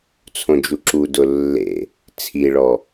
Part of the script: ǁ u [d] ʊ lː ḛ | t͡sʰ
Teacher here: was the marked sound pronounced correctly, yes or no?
yes